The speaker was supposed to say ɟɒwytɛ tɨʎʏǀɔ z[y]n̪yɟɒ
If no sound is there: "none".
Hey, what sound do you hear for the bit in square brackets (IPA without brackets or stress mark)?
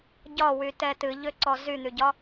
y